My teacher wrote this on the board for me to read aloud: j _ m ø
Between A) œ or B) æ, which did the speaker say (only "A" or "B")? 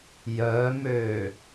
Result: A